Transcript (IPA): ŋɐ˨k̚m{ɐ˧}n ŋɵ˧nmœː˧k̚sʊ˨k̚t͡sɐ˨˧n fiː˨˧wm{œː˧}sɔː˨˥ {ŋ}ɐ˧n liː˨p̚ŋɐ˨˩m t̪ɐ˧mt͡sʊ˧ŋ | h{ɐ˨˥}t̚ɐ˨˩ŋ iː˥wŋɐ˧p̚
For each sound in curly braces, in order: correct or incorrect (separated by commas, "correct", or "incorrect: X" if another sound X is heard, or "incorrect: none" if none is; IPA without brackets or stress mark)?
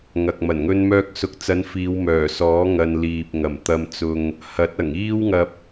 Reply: incorrect: ɐ˨˩, incorrect: œː˨˩, correct, correct